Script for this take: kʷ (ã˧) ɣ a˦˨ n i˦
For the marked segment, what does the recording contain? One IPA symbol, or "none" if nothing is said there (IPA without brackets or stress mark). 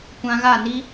ã˧